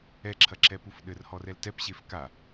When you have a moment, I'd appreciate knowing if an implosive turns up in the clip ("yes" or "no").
yes